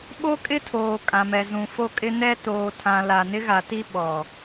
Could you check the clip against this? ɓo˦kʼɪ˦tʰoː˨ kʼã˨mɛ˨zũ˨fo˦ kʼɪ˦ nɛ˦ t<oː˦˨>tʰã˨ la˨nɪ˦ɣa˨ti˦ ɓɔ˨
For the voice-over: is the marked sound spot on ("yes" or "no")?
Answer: no